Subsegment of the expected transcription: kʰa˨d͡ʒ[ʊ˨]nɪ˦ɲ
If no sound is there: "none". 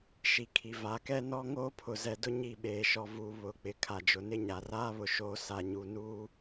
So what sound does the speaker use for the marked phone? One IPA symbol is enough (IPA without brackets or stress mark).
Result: ʊ˨